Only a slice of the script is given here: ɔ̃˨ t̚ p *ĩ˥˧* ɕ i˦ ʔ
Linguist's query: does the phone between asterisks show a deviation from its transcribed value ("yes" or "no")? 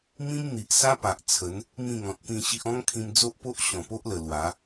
no